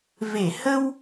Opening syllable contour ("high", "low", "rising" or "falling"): low